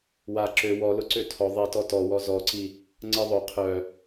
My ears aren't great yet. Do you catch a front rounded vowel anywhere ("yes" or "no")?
yes